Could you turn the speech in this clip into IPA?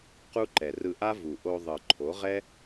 qu˦ǃɛ˨ rɯ˧ʔa˦vu˨ ʔo˧ðˤɯ˨ ǃʰo˨˦ʁɛ˦

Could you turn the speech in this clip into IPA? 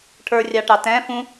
ʈʰə˞rʲɑʈɑ tɛ̃ fũ

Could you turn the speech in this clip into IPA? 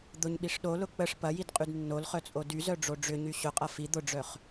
d̪ʊɲɓiʂ ɗolʊ k͡pəʂ pɐjidqʼyd nːolχœt͡sʼo dyzœɖ͡ʐo ɖ͡ʐʏɲy ɕʊqʼɐ fi d̪ʊɖ͡ʐœχ

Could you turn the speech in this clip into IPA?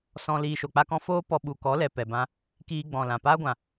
sɔ̃˧ liː˨ʃo˨k͡pa˧kɔ̃˧ foː˦ pɔ˧ɓu˨ kɔ˨˦lɛ˨ pɛ˨bã˧ | kiː˧ɡ͡bɔ̃˨lã˨ paː˦ɡʷã˨

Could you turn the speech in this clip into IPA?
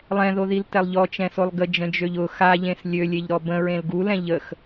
lˠɛ̃ðoðiltɛlˠ ʎɔt͡ʃɛ̃solˠ ɡəd͡ʒə̃d͡ʒøʎ ʊ xaʎẽs lʲølʲeʎɾɔ bə̃ɹẽl ɡulɛ̃ ʎəx

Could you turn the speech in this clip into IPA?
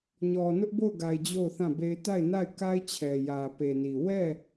ɲɔ˨ nʊ˦ʔbo˦˨ʊ̯ɡa˨ɪ̯ d͡ʑo˦˨ʊ̯θã˦˨be˦ɪ̯ ta˦˨ɪ̯na˦˨ɪ̯ka˦ɪ̯t͡ɕʰɛ˨ jä˨ pe˨ni˨ wɛ˦˨

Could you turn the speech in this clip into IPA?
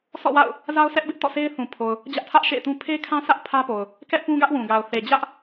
sʰɔ̰˦˨wa̰˦˨ʊ̯ | za˦ʊ̯sʰɛ˦ʔbɪ˦ʔ tɔ̰˦˨sʰe˦ɪ̯ θũ˨pʰo˨ʊ̯ | d͡ʑä˦ʔtʰä˦ʔʃḛ˦˨ɪ̯tũ˦ pʰe˦kʰã˦sä˦ʔ pʰä˦po˨ʊ̯ | kɛ˦ʔpũ˦ ɡä˦ʔwũ˨ɡa˨ʊ̯ θe˨d͡ʑä˦ʔ

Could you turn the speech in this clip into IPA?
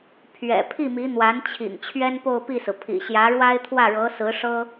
pʰɥɛ̰˨˩ pʰi˥˩mi˧˥ n̪wa˧˥nt͡ɕʰḭ˨˩ŋ t͡ɕʰɥɛ˥npo˥˧ʊ̯pi˥˩sɹ̩˩ pʰḭ˨˩ɕjä˧˥ɻwa˥ɪ̯ t̪ʰwä˥˩ɻɤ˧˥sɹ̩˧˥ ʂɤ˥

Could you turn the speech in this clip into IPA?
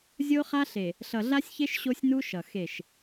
zʲo˦χa˦ɬe˨ | ɬʌ˨ɮa˦sʲçe˦ʃ ɕo˦sʲnu˦ʃʌ˨ xe˦˨ʃ

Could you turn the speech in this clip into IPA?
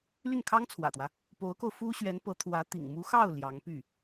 ly˥˩nkʰɑ˥ŋt͡sʰwä̰˨˩t̪wä˦ | po˧˥ʊ̯ko˧ʊ̯ fu˥ɕɥɛ˧˥npɤ˧˥t̪ʰwä˧˥ t̪ḭ˨˩ŋmu˧˥xɑ˥˩ʊ̯ ljɑ˧˥ŋ py˥˩

